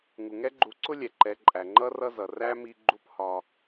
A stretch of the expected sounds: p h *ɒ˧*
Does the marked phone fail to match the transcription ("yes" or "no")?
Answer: no